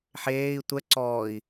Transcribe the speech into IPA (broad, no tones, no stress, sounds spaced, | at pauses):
ħ eː i̯ tʷ ɛ ǀ ɔː i̯